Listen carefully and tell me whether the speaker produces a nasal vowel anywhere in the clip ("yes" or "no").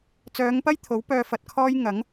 no